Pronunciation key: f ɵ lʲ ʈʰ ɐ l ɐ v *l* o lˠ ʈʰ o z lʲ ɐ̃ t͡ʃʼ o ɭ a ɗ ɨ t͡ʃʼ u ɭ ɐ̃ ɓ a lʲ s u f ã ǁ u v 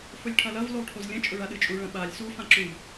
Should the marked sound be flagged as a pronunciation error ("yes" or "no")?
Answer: no